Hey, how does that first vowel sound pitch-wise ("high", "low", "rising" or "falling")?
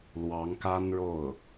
rising